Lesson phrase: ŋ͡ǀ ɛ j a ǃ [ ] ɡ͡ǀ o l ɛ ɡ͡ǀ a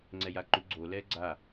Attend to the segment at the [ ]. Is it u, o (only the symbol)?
u